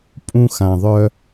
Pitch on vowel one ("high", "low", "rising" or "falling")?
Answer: high